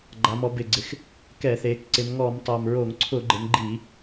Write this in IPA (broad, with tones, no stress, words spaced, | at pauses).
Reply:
ɡ͡ǃa˩˧mɔ˩˧bɪ˨˩ɡ͡ǀɪ˩˧x | kɛ˧˩˧θe˩˧k ǀɪ˩˧mŋɔ˧˩˧m tˤa˨˩mɹo˧˩˧ŋǀʰʊ˧˩˧ɡ͡ǃɪ˩˧m ɡ͡ǃi˧˩˧